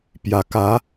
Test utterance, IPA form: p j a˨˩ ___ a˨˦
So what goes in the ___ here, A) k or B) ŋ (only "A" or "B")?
A